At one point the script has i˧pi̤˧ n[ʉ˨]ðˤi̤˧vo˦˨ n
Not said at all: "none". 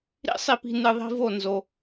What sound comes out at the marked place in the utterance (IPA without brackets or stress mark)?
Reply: ɨ˨